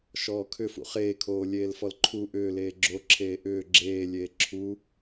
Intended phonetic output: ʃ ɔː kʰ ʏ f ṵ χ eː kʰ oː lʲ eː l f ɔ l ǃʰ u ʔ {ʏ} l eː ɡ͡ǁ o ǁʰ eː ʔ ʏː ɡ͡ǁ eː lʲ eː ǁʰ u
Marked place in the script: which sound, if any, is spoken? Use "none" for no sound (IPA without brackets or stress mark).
ʏː